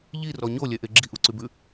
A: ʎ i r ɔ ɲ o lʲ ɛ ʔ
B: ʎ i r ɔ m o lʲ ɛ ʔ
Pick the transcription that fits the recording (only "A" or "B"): A